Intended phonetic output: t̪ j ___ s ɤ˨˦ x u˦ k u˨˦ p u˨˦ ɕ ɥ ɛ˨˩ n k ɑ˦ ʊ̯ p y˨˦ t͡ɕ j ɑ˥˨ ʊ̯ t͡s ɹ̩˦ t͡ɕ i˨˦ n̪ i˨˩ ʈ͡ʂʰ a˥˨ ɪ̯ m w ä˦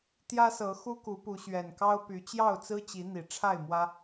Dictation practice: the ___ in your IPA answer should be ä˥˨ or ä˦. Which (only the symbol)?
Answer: ä˦